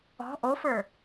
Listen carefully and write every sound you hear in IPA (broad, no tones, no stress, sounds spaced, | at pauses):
ɔ̤ ʔ o f ə˞